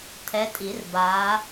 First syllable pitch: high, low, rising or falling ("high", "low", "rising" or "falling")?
rising